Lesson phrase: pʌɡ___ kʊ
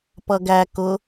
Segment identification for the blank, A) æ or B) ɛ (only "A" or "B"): A